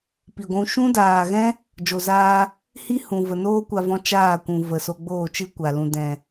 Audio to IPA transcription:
pi˨ɡʷũ˧ ʃũ˦daː˨ɣɛ̃˦ | d͡ʒo˨zaː˧ | hi˦hũ˨ və˨noː˦kʷa˧vɔ̃˧ t͡ʃaː˦˨kʷũ˨ və˨so˧ ɡ͡boː˦˨t͡ʃɨ˦kʷa˨ lũ˨dɛ̃˨

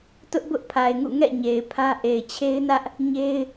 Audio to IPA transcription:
tʊ˦ʔbʊ˦ʔpʰa˨ɪ̯ŋṵ˦˨ ŋɛ̰˦˨ɲe˨ɪ̯ pʰä˦ ʔe˨ɪ̯t͡ɕʰe˦ɪ̯nä˦ʔ | ɲe˦ɪ̯

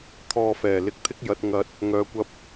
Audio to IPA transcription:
t̪ʰɔː˧fɛː˨˩ lɪ˧k̚t̪ʰɪ˥k̚jɐ˨˥t̚ ŋɐ˨˥t̚ | ŋœː˨kʷɐ˧p̚

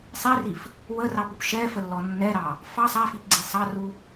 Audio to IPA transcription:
sˤirif | wərɑpup ʃɛfəlːɔ nːɛɾɑ | fɑ sˤafipɡ͡ǀi sˤɑru

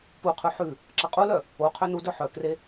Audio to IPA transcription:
puqʰʉ ħʉ | ǁɐqʼulœ | o qʰønudœ ħœkre

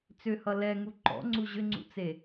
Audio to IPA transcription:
t͡sʏhʌ lɛŋu ǃɔ̰ŋ͡ǀu ʑʏŋ͡ǀṵt͡se

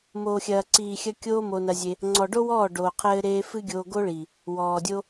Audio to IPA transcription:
moː˨xʲɐː˨ ǀiː˨xʲɐ˧ kʲoː˦mo˧nɐ˧zʲe˧ | ŋ͡ǀɔ˨ɖo˦wɔː˦˨ ɖoː˨qʰɘː˧ ɾeː˦ fɨ˦ɡʲoː˧ ɡo˦ɭi˨ | wɔː˨dʲo˦

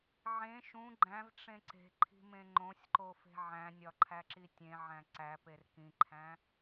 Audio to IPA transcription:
ʕẽ ʃũ ɡ͡ǃæ̃vʈ͡ʂẽ ǀe̤ǃʰi̤mẽ ŋ͡ǃõsʲǃofe̤ ʕæ̃nʲɒǃʰæǁi tʲẽʕæ̃ ǀæper kĩǃʰæ̃

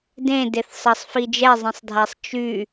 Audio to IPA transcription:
dẽ deθsˤʌsˤfi d͡ʒɛzˤẽsˤdʱasˤ t͡ʃy

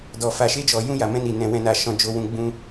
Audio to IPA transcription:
dɔ˨ fa˨ʃe˧d͡ʒɔ˨ jũ˧ja˨mɛ̃˧ ni˨ nɛ̃˨wɛ̃˨na˨ ʃɔ̃˧ d͡ʒo˧wũ˧ɡ͡bũ˦

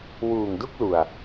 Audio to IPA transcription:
wuː˨˩ŋdu˥˩k̚ lu˨˩a̯

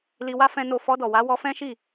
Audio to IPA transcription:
li˧wa˦ fɛ̃˦no˦˨ fɔ˧dɔ˨wa˨˦ wɔ˧fɛ̃˦ʃi˦˨

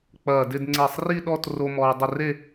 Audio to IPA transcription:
k͡pɐː˧˩dɪ˥˧d ŋ͡ǀe˧˩sˤri˥˧ɗɔ˥˧tro˧ mɔː˧dˤɪ˥˧ re˥˧

